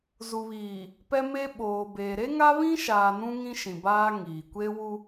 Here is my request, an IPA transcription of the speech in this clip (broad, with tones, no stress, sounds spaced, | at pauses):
z u˨ β iː˨ | p ɛ˦ m e˦ ɓ oː˨ b eː˨ ɾ e˦ ŋ a˦ β ĩ˦ ʃ aː˨ n ũ˦ ŋ ĩ˦ ʃ ĩ˨ b aː˦ ŋ iː˨ kʷ e˦ w u˦